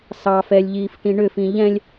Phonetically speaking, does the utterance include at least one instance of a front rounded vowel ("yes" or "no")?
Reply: yes